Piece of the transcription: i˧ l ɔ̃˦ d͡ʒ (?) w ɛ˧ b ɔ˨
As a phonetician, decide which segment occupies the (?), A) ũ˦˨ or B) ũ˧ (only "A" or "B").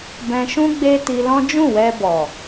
A